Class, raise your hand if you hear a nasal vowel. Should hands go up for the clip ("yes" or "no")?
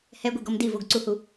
no